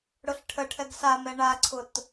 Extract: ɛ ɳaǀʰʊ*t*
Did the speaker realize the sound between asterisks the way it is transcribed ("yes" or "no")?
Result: yes